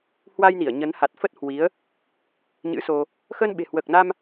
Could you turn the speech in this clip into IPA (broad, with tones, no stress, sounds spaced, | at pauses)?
h w a˧ j n i˧˩ ə̯ ɲ ə˨˦ n h a˨˩ t̚ f ə˦˥ t̚ h w i˨˦ ə̯ | ɲ ɨ̰˧˥ s o˧ | x əː˧ n ɓ e̤˨˩ h w əː˨˩ k̚ n a˧ m